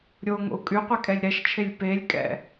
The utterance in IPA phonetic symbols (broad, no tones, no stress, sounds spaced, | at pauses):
ɾʲ o ŋ o̰ u̯ kʼ y qʷ e kʼ ɛ lʲ ɾ ɛ ʃ t͡ʃʰ e lʲ p e lʲ kʼ ɛ̰